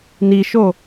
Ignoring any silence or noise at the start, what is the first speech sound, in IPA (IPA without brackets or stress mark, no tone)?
n